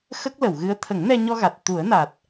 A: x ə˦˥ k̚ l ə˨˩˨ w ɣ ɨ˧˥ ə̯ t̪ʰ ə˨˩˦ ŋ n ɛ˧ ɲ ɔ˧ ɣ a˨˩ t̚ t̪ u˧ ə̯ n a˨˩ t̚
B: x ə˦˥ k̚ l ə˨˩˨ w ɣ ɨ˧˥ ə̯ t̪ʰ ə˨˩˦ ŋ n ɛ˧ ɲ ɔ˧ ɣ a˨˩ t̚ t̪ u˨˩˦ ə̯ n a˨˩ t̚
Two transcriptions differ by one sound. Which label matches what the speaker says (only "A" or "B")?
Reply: B